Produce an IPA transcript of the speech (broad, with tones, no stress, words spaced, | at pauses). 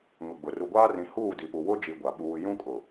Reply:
ŋʊ˨ɡ͡bʊ˨ ru˨ɡʷaː˦ rĩ˨ huː˦˨di˨pu˨ wʊ˦d͡ʒi˨ ɡʷa˨ɓuː˦ jũ˦kʼʊ˨